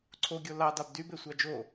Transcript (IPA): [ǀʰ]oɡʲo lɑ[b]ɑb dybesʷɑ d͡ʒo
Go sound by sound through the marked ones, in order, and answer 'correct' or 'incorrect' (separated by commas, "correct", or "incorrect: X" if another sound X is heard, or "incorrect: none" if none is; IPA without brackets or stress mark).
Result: correct, incorrect: d